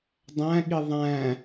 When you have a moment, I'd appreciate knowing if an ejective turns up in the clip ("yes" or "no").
no